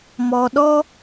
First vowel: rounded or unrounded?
rounded